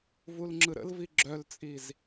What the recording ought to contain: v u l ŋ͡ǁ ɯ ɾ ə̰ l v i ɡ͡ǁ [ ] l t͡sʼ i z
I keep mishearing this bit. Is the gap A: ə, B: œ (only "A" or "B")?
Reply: B